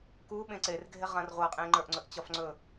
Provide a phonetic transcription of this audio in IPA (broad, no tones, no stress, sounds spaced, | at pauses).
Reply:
k u ɓ ẽ ǀ e r ɡʱ e ʁ ã r ʁʷ a qʼ ẽ ŋ͡ǃ ə˞ ʔ ŋ͡ǀ ɵ ʔ t͡ɕ ɒ f ŋ͡ǀ ɵ